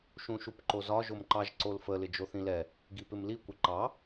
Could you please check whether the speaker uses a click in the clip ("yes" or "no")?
yes